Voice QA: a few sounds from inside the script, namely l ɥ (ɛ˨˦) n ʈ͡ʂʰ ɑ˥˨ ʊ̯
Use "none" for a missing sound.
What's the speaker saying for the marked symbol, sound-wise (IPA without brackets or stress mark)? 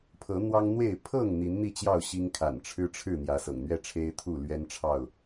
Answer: ɛ˦